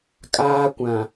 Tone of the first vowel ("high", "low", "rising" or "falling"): high